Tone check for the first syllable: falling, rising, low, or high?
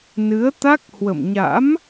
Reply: rising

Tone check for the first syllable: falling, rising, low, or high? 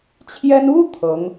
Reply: high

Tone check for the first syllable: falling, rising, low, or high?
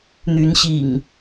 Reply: rising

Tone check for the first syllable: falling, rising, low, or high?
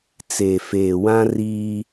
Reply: low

